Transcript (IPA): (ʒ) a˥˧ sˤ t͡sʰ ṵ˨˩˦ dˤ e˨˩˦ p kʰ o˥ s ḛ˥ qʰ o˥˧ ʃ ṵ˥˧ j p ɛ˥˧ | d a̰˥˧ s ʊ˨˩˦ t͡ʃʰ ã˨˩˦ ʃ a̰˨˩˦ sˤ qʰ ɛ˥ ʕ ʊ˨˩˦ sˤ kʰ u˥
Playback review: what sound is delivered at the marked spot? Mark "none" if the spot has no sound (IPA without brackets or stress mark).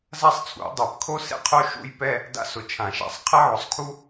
z